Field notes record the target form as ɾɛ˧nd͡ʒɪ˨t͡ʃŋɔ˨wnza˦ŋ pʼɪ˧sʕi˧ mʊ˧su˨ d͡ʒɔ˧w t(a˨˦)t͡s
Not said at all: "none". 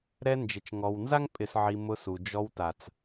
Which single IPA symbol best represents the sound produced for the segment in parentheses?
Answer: a˨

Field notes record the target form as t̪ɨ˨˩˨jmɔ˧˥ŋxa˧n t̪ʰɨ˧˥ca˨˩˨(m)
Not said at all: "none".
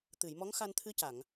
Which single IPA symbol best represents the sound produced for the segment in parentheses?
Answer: ŋ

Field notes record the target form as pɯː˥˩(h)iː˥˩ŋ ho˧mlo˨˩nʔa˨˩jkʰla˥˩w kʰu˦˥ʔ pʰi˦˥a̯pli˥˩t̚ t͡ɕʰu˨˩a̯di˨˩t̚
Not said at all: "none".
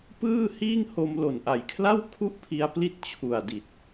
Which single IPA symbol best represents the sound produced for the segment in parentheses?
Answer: h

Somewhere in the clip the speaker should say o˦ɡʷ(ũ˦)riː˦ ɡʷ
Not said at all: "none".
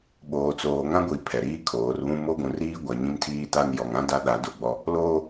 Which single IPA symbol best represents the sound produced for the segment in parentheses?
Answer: ũ˨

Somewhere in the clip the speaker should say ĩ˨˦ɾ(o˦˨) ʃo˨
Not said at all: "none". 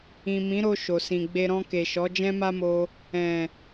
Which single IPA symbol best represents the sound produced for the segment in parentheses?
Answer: o˧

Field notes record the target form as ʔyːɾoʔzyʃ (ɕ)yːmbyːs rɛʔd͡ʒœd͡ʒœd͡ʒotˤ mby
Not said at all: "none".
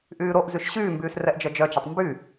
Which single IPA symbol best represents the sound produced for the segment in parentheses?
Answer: ɕ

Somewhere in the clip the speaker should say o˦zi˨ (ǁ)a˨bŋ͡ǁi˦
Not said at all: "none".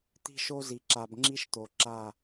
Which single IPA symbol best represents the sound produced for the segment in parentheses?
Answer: ǁ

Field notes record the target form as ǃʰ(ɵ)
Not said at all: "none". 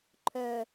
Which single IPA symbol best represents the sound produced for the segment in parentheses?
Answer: œ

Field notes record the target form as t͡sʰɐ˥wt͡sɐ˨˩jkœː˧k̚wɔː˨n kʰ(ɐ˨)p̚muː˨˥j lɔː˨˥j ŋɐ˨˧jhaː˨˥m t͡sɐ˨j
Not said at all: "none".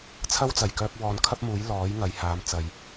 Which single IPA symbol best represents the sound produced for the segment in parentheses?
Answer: ɐ˥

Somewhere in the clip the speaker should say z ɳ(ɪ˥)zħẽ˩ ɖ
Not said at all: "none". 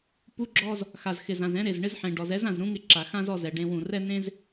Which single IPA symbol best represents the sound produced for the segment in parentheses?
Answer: ɪ˥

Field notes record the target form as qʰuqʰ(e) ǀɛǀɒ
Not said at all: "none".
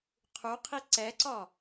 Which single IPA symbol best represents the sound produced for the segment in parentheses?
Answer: i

